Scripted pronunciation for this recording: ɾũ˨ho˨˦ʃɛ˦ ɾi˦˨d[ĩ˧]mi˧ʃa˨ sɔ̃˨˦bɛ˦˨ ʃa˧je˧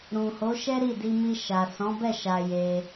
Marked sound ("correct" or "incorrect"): incorrect